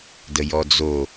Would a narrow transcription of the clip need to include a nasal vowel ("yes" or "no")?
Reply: no